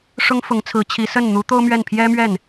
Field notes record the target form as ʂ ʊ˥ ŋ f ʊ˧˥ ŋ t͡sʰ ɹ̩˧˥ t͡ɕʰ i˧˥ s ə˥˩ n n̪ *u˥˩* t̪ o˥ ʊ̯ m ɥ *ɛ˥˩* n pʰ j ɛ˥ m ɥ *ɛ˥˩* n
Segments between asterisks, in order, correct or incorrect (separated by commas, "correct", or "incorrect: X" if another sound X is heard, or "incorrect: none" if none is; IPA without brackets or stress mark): incorrect: u˧˥, correct, correct